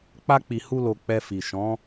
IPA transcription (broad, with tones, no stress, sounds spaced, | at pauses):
k͡p a˦ k͡p i˧ h u˦ l o˧ k͡p ɛ˧ f i˨ ʃ ɔ̃˨˦